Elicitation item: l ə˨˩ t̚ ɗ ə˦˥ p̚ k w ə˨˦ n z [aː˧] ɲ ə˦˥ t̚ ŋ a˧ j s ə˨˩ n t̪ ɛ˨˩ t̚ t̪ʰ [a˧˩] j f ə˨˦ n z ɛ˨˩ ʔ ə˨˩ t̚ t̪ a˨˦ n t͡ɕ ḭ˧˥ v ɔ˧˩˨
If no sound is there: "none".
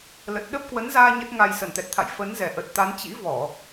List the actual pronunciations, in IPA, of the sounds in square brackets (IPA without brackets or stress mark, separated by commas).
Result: aː˧, a̰˧˨